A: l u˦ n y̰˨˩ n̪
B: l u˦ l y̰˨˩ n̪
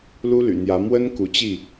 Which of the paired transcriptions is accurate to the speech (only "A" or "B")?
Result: B